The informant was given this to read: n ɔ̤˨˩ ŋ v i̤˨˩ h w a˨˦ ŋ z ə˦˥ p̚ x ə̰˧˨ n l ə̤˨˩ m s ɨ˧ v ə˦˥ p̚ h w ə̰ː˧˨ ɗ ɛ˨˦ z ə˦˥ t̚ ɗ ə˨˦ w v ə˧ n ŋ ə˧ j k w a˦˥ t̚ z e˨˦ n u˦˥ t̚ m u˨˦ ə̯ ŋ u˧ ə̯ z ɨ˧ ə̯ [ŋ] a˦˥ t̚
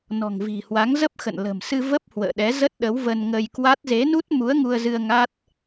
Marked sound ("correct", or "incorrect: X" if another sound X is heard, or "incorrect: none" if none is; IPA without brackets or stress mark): correct